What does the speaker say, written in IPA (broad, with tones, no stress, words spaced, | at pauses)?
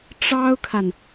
ʈ͡ʂɑ˥ʊ̯kʰa˨n